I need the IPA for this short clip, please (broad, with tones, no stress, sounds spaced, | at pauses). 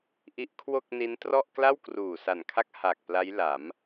ʔ i˦˥ ʔ kʰ w o˥˩ k̚ n i˦˥ n t r ɔ˥˩ ʔ k l a˥˩ w k r uː˨˩ s a˨˩ n kʰ a˦˥ k̚ h a˨˩ k̚ p l a˦˥ j l a˩˦ m